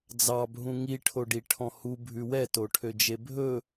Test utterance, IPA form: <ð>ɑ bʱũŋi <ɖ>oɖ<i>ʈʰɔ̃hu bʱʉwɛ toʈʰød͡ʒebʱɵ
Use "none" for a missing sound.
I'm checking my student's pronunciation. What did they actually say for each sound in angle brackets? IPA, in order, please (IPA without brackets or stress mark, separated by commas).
d͡z, ʈʰ, i